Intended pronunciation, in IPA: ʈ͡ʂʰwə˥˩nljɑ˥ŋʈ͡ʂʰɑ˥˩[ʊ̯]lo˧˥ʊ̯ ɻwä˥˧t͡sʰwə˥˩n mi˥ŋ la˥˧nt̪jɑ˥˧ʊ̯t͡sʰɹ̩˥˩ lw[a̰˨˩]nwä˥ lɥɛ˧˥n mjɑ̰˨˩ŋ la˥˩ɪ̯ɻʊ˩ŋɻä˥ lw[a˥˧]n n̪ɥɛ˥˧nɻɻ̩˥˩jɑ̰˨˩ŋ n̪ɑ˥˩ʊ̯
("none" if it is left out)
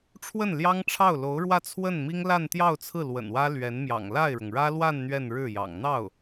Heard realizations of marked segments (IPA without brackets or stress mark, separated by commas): ʊ̯, ə̰˨˩, a˥˧